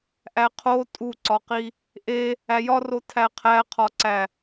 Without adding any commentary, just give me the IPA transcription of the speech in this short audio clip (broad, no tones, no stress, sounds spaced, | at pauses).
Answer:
ʔ æ qʰ o tʼ u ǀ ɒ q i | ʔ e | æ j ɒ r o tʰ æ qʰ æ qʰ ɒ ǀ æ